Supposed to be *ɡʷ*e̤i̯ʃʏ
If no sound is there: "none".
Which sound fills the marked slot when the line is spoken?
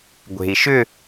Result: ɡʷ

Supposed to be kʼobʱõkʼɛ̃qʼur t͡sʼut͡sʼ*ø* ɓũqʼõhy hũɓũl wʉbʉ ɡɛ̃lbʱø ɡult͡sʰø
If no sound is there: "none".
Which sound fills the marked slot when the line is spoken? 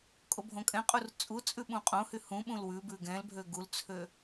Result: ʉ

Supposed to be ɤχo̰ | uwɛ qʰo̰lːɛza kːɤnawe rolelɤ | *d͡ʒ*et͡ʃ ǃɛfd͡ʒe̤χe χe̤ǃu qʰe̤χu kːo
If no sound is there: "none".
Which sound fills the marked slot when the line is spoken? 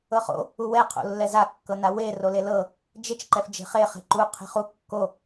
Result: d͡ʒ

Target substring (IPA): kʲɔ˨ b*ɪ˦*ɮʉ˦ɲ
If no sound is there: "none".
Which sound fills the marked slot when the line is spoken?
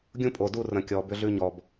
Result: ʏ˦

